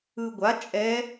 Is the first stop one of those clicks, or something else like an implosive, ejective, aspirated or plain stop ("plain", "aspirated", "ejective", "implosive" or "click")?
plain